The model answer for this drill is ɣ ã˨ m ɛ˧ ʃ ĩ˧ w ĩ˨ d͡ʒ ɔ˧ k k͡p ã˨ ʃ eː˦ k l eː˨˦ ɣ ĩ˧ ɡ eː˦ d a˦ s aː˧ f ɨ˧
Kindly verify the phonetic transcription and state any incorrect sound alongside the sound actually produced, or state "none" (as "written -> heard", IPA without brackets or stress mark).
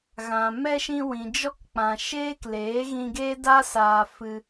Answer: none